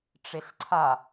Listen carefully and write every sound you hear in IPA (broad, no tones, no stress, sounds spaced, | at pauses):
ʈ͡ʂ e ɬ ǀʰ a